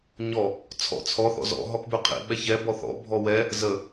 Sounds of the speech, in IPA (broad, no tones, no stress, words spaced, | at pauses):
ɲɔ | t͡sʰɔ̰t͡sʰɔ θɔ̰zɔ̰ ɦɔkbʉqʰḭ ɓɛçɛ bɔθɔ̰ bʱɔwɛ | zə